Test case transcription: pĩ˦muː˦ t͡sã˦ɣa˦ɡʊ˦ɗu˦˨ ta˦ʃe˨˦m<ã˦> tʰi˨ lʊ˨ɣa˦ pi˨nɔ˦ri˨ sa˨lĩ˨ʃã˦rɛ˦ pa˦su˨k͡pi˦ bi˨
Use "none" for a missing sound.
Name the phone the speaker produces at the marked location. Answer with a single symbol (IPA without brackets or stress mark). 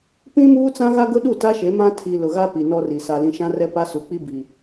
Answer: ã˦